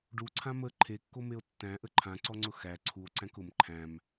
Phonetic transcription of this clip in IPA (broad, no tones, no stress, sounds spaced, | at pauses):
ɖ u ǀʰ ã m ə ǃʰ e kː o m e o̯ tː æ̃ ʔ ə ǃʰ ã ǀ ɔ ŋ͡ǀ ʊ x æ ǀʰ u o̯ ǀ æ̃ k ʊ m ǃʰ æ̃ m